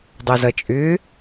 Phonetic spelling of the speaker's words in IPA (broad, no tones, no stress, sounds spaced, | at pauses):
dˤ o z ʌ t͡ʃʼ ʏ